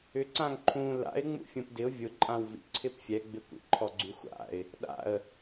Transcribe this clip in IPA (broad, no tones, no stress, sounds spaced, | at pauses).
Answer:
ʏ ǀ ã ŋ ǃʰ ũ l a̰ ɪ̯ ŋ͡m ṵ fʲ ũ p d ɪ ʊ̯ vʲ ʊ ǃʼ ã w v ḭ ǀʰ ɪ p fʲ ɛ ɡ͡b ɪ kʷ ḭ ǃʰ ɔ ɡ͡ǀ y xʷ a̰ ɪ̯ | ɗ a̰ ə̯